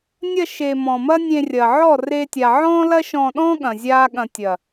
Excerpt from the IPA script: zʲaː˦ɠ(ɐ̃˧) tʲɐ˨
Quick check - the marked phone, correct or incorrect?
correct